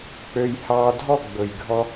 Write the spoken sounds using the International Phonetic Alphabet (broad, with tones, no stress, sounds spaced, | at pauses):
k͡p ø˧ j h ɑː˧ dʱ ɔ˦˨ ɡ͡b ɵ˨ j ɡʱ ɔ˧